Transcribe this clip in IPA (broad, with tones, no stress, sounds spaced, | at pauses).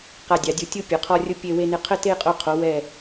q a˧˩ dʲ a˩˧ dʲ u˧˩ tʲ u˥˧ pʲ ʊ˩˧ qʰ ɔ˧ rʲ ʊ˧ pʲ e˧ w e˧ n ɪ˧ qʰ ə˥˧ t e˥˧ qʼ o˧ qʰ o˩˧ w ɛ˧˩